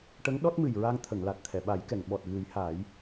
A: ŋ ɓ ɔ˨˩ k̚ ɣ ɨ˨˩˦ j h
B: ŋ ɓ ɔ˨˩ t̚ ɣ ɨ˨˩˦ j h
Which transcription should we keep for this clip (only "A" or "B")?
B